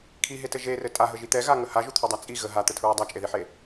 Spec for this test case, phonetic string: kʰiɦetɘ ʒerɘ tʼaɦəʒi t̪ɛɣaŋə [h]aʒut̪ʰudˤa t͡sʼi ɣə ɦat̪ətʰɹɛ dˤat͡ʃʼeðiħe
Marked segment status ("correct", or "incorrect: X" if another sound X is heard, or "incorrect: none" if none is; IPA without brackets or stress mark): correct